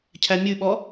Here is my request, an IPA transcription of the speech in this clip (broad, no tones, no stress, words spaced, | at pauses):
cʰæmʲʉɓɔ